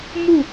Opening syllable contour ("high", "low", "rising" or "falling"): falling